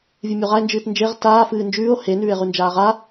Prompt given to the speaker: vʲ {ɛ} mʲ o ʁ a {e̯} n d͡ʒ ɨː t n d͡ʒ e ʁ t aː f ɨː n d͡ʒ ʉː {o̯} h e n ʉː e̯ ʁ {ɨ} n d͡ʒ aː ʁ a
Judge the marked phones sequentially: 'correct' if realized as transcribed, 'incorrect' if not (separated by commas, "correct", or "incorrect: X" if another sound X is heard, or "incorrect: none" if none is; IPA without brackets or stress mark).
incorrect: ɨ, correct, correct, incorrect: ʉ